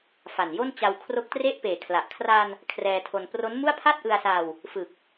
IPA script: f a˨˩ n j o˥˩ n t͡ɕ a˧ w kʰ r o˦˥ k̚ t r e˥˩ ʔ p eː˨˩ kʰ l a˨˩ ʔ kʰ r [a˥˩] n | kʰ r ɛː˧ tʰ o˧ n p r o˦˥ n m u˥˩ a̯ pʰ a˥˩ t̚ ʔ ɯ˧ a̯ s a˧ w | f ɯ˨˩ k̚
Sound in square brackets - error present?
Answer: yes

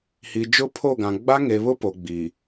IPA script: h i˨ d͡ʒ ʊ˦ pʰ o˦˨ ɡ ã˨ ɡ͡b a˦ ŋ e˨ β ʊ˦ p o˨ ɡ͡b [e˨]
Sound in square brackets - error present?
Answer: yes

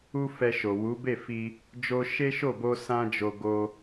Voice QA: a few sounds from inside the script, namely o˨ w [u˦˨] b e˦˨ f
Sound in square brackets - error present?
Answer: yes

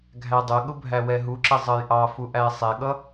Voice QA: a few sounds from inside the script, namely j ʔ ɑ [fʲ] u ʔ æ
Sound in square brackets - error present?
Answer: yes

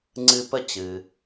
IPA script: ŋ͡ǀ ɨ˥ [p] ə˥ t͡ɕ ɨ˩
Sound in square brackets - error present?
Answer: no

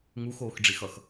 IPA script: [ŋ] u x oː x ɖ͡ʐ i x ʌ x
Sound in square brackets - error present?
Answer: no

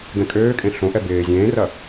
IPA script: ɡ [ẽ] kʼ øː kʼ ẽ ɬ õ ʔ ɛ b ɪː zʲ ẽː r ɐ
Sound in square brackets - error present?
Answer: yes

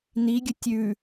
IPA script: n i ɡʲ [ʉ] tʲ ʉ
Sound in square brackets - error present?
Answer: yes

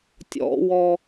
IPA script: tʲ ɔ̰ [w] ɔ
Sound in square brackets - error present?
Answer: no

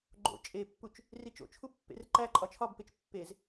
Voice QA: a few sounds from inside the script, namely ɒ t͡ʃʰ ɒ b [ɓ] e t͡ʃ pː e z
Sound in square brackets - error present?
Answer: yes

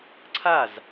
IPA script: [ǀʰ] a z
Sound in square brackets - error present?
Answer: no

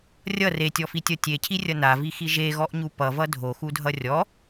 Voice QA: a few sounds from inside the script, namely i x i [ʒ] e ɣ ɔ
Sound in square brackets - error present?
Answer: no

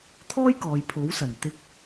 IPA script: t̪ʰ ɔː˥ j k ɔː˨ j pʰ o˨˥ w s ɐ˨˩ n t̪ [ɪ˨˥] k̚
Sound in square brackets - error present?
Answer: yes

